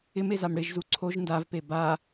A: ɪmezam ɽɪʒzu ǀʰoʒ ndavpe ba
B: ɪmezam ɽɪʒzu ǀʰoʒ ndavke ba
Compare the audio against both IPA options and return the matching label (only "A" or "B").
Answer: A